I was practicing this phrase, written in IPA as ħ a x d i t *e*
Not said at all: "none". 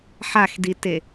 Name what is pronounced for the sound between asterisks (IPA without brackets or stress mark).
e